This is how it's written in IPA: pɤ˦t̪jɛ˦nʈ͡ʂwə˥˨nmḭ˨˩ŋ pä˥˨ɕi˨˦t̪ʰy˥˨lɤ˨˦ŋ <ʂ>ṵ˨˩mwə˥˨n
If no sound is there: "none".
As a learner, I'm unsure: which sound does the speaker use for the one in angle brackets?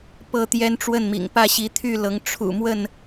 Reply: ʈ͡ʂʰ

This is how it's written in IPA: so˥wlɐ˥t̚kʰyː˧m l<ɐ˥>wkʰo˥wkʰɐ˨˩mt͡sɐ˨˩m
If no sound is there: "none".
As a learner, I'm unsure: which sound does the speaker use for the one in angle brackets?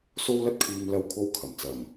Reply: ɐ˥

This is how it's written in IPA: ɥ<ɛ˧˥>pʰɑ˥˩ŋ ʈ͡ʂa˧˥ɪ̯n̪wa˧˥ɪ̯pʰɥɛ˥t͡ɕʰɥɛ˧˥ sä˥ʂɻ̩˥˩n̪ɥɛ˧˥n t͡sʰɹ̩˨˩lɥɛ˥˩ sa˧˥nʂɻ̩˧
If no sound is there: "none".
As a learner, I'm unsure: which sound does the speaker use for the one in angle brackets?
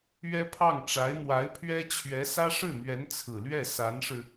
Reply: ɛ˥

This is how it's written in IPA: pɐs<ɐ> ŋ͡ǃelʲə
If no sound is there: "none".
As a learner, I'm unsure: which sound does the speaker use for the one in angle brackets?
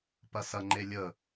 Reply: ɐ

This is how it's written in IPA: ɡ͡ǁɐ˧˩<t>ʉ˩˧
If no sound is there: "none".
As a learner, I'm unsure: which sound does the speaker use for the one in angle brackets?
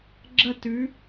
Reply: t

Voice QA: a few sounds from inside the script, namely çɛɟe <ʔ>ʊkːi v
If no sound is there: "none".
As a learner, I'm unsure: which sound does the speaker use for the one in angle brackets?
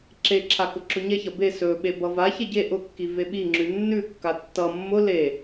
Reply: ʔ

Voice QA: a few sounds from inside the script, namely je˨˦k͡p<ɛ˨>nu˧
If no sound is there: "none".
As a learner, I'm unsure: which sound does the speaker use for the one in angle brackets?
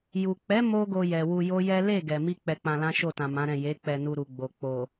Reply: ɛ˧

